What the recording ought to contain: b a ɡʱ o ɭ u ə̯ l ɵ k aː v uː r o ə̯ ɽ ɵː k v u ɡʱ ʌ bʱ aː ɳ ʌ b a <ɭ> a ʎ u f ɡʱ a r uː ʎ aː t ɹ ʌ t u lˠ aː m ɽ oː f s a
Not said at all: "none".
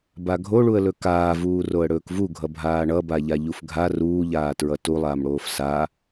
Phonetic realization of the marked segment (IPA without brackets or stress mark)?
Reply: ʎ